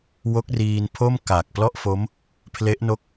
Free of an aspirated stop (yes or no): no